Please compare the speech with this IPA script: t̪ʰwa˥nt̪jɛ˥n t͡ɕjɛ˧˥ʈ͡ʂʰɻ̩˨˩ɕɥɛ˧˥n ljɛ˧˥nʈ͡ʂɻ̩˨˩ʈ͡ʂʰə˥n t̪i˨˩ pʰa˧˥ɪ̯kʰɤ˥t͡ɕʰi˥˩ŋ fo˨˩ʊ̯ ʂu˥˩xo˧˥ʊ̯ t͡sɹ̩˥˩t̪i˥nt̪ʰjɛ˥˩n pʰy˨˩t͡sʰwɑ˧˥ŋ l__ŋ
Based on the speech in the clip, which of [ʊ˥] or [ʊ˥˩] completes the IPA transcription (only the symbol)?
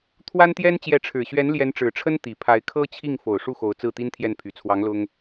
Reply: ʊ˥